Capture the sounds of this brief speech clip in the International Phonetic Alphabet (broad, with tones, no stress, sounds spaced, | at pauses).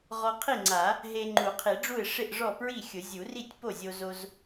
ʁ ɔ˧ qʰ i˥˩ ŋ͡ǀ a˨˩˦ | ɦ e˧ ŋ͡ǃ u˨˩˦ qʰ i˨˩˦ ɖ͡ʐ u˥˩ ɪ̯ ʂ ɪ˥˩ ʔ ʐ ɔ˥˩ p ɹ i˥˩ xʲ ʊ˨˩˦ zʲ u˨˩˦ r i˥˩ tʲ p o˥˩ zʲ o˧ z o˧ z